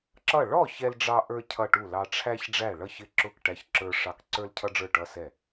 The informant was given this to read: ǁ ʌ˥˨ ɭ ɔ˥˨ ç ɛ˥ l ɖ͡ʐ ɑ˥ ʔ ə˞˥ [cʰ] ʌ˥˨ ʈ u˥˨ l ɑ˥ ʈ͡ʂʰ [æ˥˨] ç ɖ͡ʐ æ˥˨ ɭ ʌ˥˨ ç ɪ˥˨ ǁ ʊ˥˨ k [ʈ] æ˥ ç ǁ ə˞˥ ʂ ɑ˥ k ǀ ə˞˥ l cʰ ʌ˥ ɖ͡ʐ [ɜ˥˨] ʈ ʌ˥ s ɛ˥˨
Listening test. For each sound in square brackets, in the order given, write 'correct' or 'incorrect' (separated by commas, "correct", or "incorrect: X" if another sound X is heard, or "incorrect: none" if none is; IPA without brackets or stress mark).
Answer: correct, incorrect: æ˥, correct, incorrect: ə˞˥˨